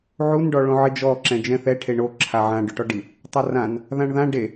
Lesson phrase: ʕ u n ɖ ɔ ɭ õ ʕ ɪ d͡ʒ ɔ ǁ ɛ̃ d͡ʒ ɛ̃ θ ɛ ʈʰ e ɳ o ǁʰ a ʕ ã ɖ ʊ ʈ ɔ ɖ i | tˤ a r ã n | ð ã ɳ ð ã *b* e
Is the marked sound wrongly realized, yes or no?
yes